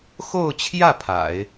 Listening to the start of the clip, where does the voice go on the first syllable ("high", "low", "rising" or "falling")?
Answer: falling